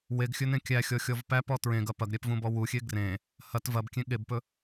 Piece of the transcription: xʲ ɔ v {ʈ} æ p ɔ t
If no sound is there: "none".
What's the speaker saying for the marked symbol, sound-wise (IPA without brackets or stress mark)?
p